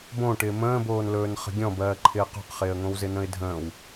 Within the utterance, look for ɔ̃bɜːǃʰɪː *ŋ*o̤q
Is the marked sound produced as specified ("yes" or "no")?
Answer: no